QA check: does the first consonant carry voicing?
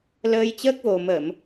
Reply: yes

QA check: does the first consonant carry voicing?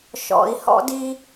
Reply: no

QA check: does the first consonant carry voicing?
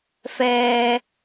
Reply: no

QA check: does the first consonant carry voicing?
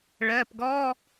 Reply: yes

